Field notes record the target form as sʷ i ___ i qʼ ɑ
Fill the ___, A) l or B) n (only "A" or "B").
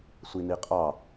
B